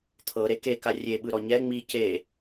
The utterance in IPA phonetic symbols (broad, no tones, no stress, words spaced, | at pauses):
t̪ʰɤɾe keka rʲeɓɯɾɔ ɲɛ ŋ͡mi ce